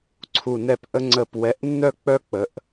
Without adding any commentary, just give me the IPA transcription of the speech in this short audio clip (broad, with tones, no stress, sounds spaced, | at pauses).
ǀʰ u˧˩ n ɛ˥˨ p ʔ ə˦ ŋ͡ǀ ə˧˩ p w ɛ˨˦ ʔ nː œ˦ k͡p œ˦ k͡p ə˨˦ ʔ